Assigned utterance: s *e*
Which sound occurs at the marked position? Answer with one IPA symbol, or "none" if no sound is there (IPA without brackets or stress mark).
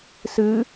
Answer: ɨ